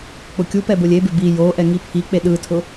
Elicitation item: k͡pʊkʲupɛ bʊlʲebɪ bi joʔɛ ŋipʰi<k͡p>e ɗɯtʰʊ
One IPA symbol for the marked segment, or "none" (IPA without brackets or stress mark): k͡p